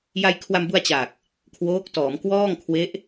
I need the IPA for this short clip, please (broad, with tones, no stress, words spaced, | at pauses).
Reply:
ja˧jkʰwa˧mbu˧a̯ t͡ɕa˨˩k̚ | kʰwoː˦˥k̚tɔː˩˦m kwɔː˥˩ŋ kʰwe˦˥ʔ